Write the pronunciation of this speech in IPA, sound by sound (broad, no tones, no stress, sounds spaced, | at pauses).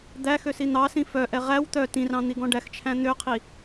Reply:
d̪ æ x ø s i n̪ ɑ s ĩ f œ ʔ ɛ ʁ æ w t̪ œ t ĩ r ɑ̃ n̪ i ɡ ɔ̃ ɖ æ x t͡ʃʰ æ̃ n̪ ø qʰ i